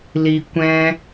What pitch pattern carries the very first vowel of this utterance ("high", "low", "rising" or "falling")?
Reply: low